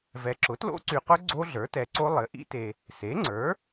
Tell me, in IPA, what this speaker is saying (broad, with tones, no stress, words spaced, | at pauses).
vɛ˨ǁʊ˩˥tlo̰˦˥ ǀy˨qʊ˦˥ ɡ͡ǀo˦˥ɮə˞˩˥tɛ˨ǀo˦˥ lˠɘ˩˥ʔḭ˦˥te˨ | se˩˥ŋ͡ǀə˞˩˥